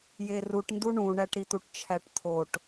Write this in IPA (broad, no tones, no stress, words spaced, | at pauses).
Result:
jeruʈndu ɳũɳæʈɾit̪uʈ t͡ʃʰæʈt̪ʰoʈ